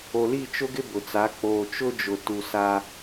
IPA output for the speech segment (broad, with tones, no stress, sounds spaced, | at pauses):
o˨ l i˦˨ t͡ʃ ʊ˦ ɡ ɪ˦ b ʊ˨ t͡s a˨˦ k͡p oː˨ t͡ʃ ʊ˦ d͡ʒ ʊ˨ t u˨ s a˦